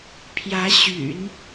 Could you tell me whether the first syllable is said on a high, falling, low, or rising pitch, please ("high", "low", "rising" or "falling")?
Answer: rising